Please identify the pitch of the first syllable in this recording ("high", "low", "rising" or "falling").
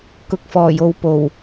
low